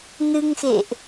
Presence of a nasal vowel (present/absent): absent